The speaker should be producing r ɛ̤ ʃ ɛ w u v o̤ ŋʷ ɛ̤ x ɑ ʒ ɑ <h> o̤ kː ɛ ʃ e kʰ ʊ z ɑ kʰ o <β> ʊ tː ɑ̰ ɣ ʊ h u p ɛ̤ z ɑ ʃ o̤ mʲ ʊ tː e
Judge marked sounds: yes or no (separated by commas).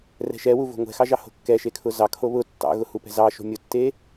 yes, yes